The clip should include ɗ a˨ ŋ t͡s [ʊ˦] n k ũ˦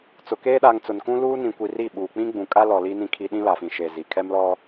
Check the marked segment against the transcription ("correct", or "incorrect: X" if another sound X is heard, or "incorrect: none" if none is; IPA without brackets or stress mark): incorrect: ʊ˨